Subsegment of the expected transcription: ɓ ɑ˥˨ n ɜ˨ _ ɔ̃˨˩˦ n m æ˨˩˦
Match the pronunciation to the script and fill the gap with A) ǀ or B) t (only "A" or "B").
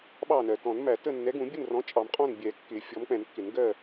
B